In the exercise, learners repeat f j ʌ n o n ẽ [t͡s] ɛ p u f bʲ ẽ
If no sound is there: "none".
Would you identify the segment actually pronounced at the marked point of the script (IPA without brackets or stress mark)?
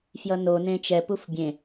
t͡ʃ